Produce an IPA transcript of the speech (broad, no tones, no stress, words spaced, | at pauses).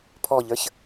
pʰɔʎə˞ç